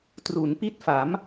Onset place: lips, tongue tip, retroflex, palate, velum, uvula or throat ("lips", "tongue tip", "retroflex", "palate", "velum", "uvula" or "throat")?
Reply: tongue tip